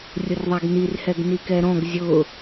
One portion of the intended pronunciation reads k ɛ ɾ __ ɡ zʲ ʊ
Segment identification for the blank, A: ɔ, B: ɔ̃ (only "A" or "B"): B